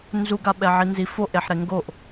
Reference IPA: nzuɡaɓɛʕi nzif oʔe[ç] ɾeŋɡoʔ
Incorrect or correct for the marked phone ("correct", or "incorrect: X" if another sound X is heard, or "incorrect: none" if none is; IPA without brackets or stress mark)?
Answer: incorrect: ħ